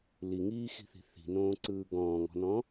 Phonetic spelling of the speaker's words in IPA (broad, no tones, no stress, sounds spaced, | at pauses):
l i ŋ iː x i̤ θ i̤ θ i̤ n õː ǀ ɯː ɡ ɔ̃ː ŋ ɔ̤ n ɔ̃